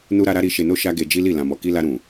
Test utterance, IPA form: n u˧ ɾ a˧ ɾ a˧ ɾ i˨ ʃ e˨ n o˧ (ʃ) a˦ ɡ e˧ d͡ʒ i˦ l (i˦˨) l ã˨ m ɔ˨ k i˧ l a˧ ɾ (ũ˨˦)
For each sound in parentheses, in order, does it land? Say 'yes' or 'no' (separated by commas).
yes, yes, no